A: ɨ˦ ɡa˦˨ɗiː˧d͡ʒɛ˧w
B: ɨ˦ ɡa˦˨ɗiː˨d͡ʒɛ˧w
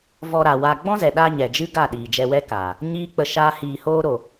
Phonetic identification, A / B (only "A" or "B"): B